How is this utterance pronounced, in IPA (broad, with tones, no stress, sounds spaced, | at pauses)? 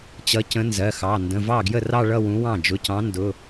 t͡ɕ ʌ˨˥ c ə̃˨˥ n z ɜ˩˧˩ x ɑ˩˧˩ n d ə̃˩˧˩ v ɑ˥˩ ɡ j ə˥˩ r ɑ˥˧ ɭ ʌ˥˧ w ũ˨˥ w ɑ̃˥˩ d͡ʒ ʊ˩˧˩ c ɑ̃˨˥ n d ʊ˩˧˩